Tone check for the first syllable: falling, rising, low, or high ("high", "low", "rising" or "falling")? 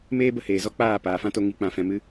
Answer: high